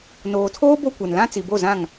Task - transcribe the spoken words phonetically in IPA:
n oː˨ tʰ oː˦ b o˦ kʷ ɛ˨ n l ã˦ t͡s i˨ b o˦˨ z ã˦˨ ŋ

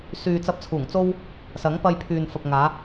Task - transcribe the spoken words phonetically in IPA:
s yː˨ t͡s ɐ˧ p̚ t͡sʰ uː˨˩ ŋ t͡s o˥ w | s ɐ˨˥ ŋ p ɐ˧ j pʰ yː˨ n f ɐ˨ p̚ ŋ aː˨˧

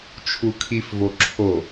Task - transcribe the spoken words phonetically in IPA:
t͡ʃʰ u kʰ i f v o ǁʰ o

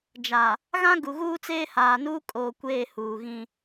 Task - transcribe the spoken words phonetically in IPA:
d͡ʒ a˨ | ɣ ã˦ ɡ u˨ ɣ uː˦ t͡s eː˦ h aː˨ n uː˦ kʼ oː˨ kʷ eː˦˨ h uː˨ ɣ ĩ˦

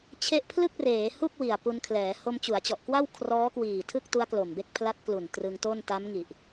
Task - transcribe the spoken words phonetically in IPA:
t͡ɕʰ e˥˩ ʔ pʰ l ɯ˥˩ k̚ r eː˩˦ h u˥˩ k̚ w i˨˩ a̯ p u˧ n kʰ l ɛː˩˦ h o˧ m t͡ɕ u˩˦ a̯ t͡ɕ ɔ˨˩ ʔ k w a˥˩ w kʰ r ɔː˦˥ k w iː˨˩ tʰ ɯ˥˩ k̚ t u˦˥ a̯ k l o˨˩ m b e˥˩ k̚ pʰ l a˦˥ t̚ k l u˨˩ n t r ɯ˧ ŋ t o˥˩ n t a˦˥ m ŋ i˨˩ ʔ

